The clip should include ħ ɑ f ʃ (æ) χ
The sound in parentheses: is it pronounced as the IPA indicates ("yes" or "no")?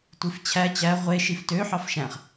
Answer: no